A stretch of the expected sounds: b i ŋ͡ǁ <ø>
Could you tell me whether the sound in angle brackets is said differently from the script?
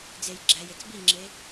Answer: yes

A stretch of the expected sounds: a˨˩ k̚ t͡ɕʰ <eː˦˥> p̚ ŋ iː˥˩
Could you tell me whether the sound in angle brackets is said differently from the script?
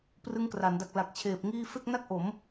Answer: yes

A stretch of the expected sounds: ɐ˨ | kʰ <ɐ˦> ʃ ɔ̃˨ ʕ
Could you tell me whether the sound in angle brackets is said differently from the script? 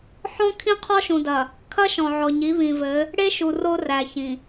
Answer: no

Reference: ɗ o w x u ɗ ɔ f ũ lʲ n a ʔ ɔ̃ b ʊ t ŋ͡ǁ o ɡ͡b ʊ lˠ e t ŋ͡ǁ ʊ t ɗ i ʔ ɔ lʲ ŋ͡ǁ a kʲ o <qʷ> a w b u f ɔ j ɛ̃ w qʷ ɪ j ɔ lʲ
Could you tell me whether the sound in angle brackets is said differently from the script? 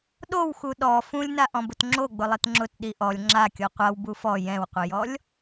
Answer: no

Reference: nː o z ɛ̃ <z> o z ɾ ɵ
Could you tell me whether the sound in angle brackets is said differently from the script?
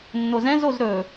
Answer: no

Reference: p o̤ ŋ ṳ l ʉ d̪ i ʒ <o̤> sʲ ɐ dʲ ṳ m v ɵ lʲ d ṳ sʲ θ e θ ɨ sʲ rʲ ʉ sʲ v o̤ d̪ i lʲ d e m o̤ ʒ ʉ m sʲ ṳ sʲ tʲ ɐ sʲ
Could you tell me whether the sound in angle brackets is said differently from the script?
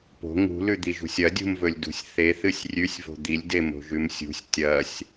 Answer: yes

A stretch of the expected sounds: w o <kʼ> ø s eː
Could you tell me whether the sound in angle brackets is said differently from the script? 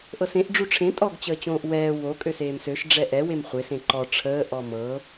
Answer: no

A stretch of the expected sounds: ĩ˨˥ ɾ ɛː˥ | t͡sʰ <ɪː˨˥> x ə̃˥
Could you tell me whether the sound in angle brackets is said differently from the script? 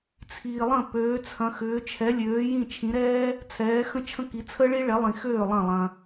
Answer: yes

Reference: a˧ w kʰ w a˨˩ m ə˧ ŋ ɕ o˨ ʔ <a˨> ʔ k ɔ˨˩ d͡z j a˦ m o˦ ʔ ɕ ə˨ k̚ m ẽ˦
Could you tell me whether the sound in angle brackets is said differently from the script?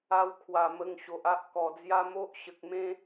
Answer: yes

